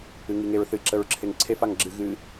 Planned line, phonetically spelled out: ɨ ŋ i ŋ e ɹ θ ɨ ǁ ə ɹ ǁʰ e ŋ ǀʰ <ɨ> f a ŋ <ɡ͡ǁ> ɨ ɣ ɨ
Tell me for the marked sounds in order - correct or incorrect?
incorrect: e, correct

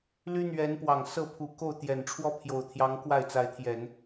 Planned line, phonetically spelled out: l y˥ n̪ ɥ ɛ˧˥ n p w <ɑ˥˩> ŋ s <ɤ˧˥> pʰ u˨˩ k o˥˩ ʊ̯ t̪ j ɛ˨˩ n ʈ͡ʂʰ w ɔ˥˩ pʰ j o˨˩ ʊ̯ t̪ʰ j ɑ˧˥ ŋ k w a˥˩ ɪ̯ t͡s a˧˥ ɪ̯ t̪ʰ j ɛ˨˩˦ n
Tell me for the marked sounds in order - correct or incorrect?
incorrect: ɑ˨˩, incorrect: ɤ˥˩

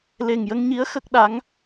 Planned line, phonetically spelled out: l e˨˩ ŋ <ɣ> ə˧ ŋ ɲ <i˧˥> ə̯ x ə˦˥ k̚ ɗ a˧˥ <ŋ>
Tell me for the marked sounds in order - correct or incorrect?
incorrect: j, correct, correct

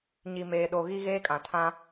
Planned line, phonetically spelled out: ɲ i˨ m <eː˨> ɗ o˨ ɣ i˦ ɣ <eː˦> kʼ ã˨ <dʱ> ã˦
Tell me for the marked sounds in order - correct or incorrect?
correct, correct, incorrect: tʰ

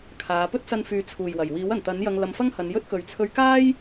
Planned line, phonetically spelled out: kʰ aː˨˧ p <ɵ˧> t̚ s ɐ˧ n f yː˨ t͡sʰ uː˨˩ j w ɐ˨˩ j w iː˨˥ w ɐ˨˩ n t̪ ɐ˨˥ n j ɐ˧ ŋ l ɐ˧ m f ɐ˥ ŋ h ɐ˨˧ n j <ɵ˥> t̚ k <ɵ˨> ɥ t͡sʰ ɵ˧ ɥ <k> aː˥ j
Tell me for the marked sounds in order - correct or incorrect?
incorrect: ɵ˥, correct, correct, correct

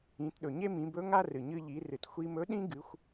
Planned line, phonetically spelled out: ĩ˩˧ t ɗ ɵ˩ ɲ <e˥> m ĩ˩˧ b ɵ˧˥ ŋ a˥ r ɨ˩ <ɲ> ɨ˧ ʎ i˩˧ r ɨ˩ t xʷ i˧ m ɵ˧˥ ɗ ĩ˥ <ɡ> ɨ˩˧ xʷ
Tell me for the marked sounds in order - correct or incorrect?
correct, correct, correct

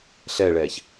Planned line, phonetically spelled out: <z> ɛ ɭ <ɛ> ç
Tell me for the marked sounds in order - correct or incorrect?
incorrect: ɬ, correct

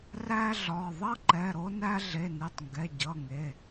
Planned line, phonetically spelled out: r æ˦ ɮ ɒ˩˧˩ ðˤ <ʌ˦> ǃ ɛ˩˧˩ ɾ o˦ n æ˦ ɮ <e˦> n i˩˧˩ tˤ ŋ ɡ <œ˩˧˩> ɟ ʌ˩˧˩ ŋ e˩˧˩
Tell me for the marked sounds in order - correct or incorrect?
correct, incorrect: e˩˧˩, incorrect: ɛ˩˧˩

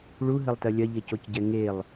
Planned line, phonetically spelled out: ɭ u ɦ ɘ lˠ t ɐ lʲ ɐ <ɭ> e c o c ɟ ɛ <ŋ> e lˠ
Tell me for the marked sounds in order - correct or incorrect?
incorrect: ʎ, correct

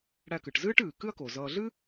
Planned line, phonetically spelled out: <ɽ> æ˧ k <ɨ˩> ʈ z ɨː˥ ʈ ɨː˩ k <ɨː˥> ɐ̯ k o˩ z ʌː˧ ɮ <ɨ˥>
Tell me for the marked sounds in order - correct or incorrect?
correct, correct, incorrect: ɨ˥, correct

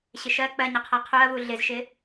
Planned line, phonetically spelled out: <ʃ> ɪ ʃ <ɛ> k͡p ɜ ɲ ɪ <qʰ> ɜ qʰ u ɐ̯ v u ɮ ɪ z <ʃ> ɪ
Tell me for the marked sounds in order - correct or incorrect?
incorrect: ɕ, incorrect: ɜ, correct, correct

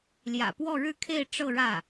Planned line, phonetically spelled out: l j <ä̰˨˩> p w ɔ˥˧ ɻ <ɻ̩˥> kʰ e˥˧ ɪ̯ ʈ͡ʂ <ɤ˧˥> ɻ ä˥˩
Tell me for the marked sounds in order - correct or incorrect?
correct, incorrect: ɻ̩˥˧, incorrect: ɤ˥˧

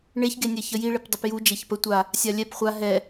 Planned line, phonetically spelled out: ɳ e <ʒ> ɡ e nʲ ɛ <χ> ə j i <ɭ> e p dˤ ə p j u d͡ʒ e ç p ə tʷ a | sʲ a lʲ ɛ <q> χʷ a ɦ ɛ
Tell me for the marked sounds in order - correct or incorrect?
incorrect: ç, incorrect: ç, correct, incorrect: p

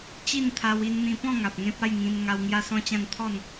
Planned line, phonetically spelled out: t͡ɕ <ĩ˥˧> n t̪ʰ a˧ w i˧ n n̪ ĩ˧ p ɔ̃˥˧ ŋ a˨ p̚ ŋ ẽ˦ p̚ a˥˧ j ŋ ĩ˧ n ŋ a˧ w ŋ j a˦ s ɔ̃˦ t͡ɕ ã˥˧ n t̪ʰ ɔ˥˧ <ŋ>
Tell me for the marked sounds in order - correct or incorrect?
incorrect: i˥˧, incorrect: n

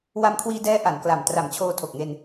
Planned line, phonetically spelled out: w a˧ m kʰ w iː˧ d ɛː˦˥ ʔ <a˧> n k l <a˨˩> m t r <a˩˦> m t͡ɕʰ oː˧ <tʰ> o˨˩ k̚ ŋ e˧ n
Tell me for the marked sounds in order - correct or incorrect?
incorrect: a˩˦, correct, correct, correct

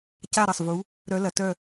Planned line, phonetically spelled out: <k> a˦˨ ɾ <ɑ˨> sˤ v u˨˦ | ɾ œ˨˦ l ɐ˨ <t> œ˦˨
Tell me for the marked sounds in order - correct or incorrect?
incorrect: c, incorrect: ɐ˨, correct

